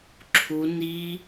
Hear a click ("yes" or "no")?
yes